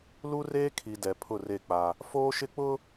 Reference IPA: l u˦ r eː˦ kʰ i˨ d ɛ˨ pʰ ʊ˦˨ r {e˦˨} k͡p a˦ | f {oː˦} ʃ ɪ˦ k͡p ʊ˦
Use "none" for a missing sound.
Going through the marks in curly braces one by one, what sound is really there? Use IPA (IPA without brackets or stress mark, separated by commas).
e˦˨, oː˦